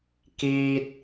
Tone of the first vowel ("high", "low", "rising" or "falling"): high